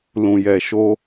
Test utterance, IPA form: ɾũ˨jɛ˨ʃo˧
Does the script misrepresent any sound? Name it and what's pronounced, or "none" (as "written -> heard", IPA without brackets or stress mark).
ɾ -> l